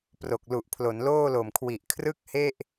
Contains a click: no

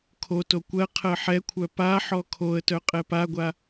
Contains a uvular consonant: yes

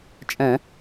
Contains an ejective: yes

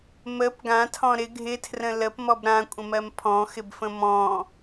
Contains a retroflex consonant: no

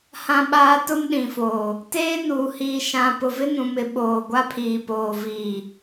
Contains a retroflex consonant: no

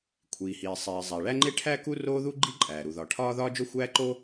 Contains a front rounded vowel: no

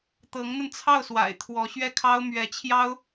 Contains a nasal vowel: no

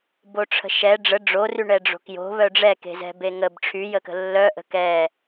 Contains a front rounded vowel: yes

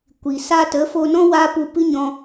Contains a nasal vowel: yes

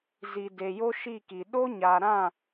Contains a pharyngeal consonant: no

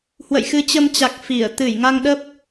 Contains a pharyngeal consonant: no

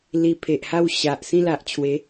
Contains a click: no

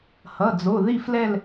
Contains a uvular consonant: no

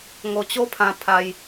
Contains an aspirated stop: yes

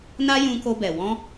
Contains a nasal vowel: yes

